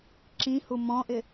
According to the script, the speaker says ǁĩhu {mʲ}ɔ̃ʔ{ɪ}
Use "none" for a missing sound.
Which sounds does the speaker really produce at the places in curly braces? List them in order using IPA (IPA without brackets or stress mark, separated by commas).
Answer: m, ɪ